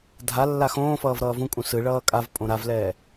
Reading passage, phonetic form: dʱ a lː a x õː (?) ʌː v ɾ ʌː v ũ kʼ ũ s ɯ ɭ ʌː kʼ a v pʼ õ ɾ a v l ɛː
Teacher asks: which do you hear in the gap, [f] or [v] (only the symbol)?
f